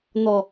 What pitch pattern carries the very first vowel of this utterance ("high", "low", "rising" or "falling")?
low